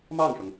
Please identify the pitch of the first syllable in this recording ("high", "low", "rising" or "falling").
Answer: falling